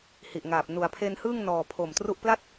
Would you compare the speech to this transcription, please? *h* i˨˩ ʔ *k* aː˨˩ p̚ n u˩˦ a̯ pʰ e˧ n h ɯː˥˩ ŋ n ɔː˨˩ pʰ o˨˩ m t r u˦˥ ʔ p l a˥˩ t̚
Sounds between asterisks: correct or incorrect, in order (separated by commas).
correct, incorrect